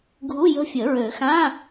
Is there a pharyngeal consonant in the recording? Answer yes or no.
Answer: no